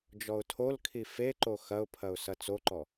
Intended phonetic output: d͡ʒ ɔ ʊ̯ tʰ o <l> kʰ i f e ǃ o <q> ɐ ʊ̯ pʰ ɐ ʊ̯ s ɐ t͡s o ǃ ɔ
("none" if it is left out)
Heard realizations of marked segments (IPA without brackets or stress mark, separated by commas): l, x